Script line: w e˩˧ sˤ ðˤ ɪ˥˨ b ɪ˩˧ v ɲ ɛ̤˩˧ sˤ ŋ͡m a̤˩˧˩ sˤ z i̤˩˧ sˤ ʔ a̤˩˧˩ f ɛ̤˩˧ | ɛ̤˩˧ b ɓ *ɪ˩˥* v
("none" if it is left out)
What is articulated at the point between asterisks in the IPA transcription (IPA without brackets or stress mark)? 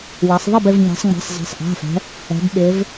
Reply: ɪ˩˧